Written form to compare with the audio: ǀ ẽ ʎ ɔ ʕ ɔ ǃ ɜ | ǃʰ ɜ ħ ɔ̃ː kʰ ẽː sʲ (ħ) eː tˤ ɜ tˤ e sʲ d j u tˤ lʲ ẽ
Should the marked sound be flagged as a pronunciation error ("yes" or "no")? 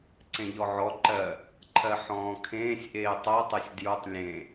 yes